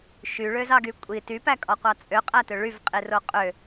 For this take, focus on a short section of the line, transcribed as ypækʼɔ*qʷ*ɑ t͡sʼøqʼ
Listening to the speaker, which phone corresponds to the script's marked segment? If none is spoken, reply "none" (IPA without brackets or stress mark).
qʷ